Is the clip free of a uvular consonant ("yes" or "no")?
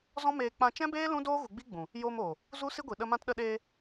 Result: yes